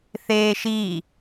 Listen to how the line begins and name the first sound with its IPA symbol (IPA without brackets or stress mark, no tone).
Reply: θ